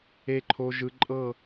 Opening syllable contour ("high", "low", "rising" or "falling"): low